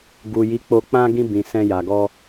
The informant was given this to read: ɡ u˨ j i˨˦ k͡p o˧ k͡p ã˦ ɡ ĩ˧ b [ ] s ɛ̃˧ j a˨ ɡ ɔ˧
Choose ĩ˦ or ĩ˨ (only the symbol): ĩ˨